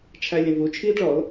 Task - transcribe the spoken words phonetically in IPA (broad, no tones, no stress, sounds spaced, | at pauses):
t͡ʃʰ æ lʲ ə̃ v u t͡ʃʰ iː d ɭ ɔ l